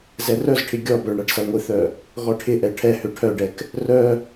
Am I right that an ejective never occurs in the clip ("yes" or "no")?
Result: yes